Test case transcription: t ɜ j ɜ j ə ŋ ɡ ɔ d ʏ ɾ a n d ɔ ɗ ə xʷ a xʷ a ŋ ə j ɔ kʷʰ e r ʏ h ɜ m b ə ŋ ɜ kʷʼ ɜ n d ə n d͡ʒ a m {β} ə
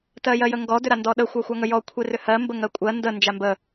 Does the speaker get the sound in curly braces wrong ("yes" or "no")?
yes